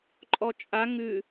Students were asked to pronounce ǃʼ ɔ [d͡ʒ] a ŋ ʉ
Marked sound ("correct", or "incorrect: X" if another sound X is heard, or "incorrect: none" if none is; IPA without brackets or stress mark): incorrect: t͡ʃʼ